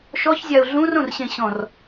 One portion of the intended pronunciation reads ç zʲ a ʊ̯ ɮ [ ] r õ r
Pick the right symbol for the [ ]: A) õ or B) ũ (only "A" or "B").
B